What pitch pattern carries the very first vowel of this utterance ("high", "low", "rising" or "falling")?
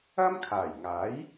high